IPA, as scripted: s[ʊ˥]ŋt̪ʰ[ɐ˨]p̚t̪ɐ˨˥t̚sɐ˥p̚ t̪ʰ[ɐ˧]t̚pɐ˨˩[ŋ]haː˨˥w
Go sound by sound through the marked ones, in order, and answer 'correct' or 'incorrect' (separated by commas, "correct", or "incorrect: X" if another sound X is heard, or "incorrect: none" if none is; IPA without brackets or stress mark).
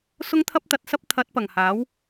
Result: correct, incorrect: ɐ˥, incorrect: ɐ˨˥, correct